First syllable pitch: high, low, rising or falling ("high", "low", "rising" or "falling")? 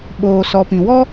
low